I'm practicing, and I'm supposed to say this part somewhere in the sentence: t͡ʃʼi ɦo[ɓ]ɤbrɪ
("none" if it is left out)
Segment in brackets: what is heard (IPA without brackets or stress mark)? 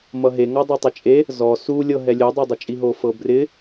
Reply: f